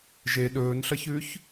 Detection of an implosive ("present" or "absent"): present